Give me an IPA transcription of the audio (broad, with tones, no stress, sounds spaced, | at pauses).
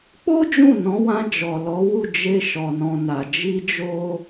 k͡p o˦ d͡ʒ ũ˦˨ n ɔ̃˨˦ w ã˧ d͡ʒ ɔ˨ l ɔ˨˦ w u˦˨ d͡ʒ e˧ ʃ ɔ˨ n ɔ̃˨ n a˨ d͡ʒ i˧ d͡ʒ o˧